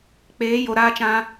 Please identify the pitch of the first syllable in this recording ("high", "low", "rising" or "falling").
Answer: rising